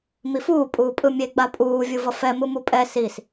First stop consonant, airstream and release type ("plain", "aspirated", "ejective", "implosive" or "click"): ejective